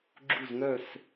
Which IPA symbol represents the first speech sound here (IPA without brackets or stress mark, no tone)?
ɡ͡ǁ